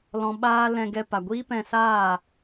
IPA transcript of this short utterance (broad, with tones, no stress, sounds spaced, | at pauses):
l ɔ̃˧ ɓ aː˦ l ɛ̃˧ ɡ ɛ˧ p a˨ ɡʷ iː˦ p ɛ̃˧ s aː˦˨